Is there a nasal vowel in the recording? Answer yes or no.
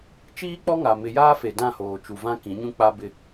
yes